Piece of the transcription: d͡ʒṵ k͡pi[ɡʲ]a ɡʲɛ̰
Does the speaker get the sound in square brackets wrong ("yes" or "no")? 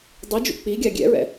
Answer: no